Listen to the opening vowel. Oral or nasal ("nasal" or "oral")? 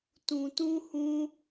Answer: nasal